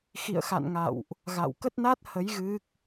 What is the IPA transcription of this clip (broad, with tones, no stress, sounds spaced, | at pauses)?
x ḭ˧˨ ə̯ x a̰˧˨ n ŋ a̰˧˨ w ʔ | ɣ a̰˧˨ w k ə˦˥ t̚ n a˦˥ t̚ h ə˨˦ j ɣ ɨ˦˥ k̚